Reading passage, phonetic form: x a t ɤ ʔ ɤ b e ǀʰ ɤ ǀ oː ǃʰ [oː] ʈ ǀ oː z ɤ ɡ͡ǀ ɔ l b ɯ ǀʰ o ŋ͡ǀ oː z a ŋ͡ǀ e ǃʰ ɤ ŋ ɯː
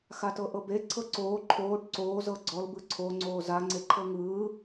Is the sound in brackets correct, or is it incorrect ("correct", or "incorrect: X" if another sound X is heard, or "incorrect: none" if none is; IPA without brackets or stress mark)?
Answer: correct